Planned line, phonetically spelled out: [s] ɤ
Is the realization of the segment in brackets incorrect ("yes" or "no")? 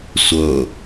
yes